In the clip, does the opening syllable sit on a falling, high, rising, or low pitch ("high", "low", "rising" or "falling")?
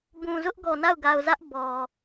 low